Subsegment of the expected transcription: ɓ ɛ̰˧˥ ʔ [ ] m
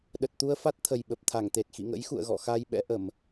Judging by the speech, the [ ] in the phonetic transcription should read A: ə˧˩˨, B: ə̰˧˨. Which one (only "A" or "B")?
A